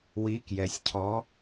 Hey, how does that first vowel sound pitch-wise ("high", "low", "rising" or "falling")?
rising